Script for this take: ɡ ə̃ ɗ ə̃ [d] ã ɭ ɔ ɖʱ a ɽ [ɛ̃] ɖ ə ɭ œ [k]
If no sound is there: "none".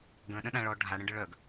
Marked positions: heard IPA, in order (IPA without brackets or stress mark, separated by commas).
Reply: ɗ, ə̃, ɡ